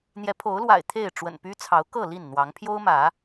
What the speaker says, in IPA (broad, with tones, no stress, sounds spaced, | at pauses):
n̪ j ɛ˨˦ pʰ o˨˦ ʊ̯ l w a̰˨˩ ɪ̯ t̪ʰ e˥˨ ɪ̯ ʈ͡ʂ w ə̰˨˩ n p y˦ t͡sʰ ɑ˨˦ ʊ̯ k ɤ˥˨ l i˥˨ n n̪ w ɑ˨˦ ŋ pʰ j o˦ ʊ̯ m ä˨˦